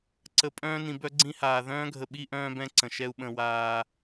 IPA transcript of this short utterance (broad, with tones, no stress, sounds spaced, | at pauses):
ǀ ə˨ pʼ œ̃ː˦ n ĩ˨ b œ˦ ɡ͡ǀ ĩ˦ h aː˨ ð œ̃ː˦ ɡʱ ə˨ ɓ i˦ ʔ œ̃ː˦ b ɛ̃˦ ǀ ə̃˨ ʃ ɛ˦ u̯ ɓ ə̃˦˨ w aː˦